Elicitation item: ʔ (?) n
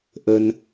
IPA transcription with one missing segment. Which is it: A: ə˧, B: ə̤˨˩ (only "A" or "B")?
A